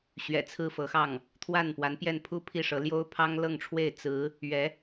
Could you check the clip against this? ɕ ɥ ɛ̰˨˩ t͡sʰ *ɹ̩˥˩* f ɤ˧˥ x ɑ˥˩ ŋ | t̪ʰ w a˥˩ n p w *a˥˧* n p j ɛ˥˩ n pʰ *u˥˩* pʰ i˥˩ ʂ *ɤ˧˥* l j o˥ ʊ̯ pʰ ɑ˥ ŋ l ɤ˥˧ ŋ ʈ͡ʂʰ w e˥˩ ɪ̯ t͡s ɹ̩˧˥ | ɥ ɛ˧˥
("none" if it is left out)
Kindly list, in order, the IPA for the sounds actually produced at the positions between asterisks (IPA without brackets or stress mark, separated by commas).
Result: ɹ̩˥˩, a˧˥, u˥, ɤ˧˥